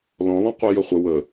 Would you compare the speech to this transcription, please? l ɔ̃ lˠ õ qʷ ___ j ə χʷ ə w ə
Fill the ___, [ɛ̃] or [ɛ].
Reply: ɛ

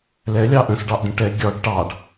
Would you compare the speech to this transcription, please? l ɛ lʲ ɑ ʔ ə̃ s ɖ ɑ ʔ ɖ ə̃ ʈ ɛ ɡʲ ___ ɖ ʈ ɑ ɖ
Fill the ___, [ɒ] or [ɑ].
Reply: ɒ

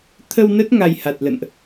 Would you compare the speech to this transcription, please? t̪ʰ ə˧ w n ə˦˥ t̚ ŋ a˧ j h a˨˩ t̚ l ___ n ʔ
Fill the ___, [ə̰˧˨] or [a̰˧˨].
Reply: ə̰˧˨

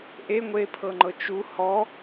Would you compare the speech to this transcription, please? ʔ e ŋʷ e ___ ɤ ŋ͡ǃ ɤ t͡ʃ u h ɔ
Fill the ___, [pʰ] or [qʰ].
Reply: pʰ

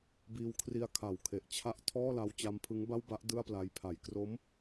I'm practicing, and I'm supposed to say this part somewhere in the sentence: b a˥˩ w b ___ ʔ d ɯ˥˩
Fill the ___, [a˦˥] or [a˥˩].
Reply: a˦˥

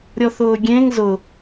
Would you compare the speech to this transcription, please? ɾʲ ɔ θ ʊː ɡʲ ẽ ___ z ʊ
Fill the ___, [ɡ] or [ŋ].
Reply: ŋ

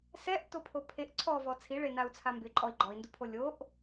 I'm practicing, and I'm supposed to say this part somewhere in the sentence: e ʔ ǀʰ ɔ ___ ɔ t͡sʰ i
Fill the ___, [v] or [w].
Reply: v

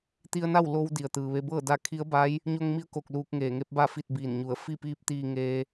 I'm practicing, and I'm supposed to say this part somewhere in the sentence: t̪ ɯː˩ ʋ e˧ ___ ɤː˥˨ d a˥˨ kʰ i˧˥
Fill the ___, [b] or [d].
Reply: b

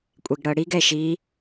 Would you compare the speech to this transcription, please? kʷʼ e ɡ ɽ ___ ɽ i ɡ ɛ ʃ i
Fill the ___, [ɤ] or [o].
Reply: ɤ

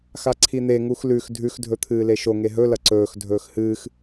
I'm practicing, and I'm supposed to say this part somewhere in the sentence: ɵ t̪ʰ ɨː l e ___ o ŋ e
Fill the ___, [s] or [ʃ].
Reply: ʃ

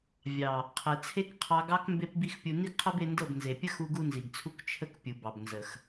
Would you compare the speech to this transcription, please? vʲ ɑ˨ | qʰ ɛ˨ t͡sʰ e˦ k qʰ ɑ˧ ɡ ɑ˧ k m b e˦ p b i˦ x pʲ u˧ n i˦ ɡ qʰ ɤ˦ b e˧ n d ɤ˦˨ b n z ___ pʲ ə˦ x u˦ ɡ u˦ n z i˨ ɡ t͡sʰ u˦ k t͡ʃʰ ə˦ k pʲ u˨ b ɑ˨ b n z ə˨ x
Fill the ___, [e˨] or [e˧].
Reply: e˨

